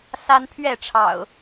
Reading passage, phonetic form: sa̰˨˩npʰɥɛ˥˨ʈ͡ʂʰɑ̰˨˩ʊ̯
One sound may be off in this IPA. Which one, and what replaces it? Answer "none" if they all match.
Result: a̰˨˩ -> a˦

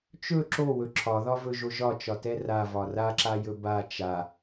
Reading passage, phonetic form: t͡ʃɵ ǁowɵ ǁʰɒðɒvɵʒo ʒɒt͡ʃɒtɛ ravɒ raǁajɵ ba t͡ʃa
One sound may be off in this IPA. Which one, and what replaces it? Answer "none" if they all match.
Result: none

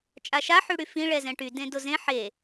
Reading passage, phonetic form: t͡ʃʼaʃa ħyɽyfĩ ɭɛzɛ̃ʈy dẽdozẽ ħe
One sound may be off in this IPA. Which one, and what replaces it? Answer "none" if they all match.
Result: none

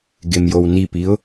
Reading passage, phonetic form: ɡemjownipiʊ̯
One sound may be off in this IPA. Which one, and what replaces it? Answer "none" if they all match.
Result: none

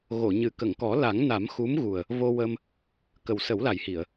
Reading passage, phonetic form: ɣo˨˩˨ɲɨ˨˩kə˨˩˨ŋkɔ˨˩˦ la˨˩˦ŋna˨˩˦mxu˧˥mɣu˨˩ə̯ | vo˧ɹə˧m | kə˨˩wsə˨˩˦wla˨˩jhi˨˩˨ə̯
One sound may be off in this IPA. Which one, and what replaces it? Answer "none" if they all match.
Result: ɹ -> w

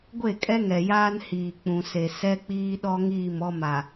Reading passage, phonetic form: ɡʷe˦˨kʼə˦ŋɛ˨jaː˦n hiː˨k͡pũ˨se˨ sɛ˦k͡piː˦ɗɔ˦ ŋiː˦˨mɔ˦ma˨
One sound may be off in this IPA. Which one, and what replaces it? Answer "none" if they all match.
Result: ə˦ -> ɛ˦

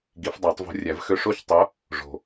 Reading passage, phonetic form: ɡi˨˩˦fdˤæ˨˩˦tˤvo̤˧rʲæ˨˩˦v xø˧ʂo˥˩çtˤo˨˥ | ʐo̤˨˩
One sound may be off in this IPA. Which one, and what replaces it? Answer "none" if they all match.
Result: none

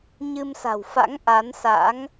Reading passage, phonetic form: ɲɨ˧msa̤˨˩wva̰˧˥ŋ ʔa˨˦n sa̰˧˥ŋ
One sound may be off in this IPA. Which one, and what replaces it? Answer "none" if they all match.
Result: v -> f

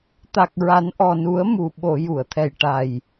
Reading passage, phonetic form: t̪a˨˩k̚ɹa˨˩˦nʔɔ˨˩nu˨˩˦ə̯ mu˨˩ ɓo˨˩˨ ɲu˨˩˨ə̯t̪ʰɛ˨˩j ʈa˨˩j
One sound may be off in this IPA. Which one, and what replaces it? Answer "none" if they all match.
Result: ɲ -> j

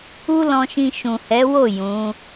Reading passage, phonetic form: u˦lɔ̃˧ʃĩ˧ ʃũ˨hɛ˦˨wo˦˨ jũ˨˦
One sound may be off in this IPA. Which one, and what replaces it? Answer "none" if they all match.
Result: ɛ˦˨ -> ɛ˨˦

